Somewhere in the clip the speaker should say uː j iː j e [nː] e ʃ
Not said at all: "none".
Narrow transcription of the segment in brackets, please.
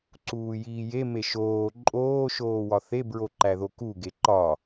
m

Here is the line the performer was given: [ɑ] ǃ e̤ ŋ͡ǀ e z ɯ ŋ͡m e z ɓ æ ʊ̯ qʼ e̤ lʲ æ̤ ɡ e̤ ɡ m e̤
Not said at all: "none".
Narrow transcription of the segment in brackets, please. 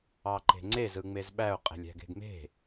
ɑ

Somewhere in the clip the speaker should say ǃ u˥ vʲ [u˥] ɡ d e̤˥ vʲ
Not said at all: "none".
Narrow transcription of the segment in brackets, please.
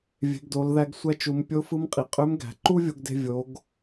o˥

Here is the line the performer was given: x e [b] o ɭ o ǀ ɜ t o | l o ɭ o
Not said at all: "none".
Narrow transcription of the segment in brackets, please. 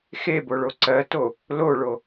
b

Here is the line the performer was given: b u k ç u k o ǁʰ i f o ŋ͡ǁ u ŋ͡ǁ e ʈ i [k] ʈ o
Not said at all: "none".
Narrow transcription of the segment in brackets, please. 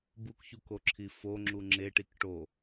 k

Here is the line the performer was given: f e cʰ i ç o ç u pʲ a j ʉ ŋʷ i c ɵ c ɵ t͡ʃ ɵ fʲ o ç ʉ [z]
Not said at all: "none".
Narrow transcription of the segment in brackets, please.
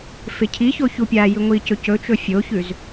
z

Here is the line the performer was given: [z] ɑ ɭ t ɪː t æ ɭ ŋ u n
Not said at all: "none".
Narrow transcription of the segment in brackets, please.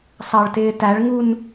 s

